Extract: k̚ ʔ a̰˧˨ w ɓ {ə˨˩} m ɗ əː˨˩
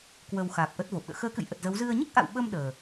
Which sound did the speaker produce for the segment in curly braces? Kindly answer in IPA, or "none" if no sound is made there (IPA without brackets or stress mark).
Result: ə˧